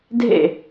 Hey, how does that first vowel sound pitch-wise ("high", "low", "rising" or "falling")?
falling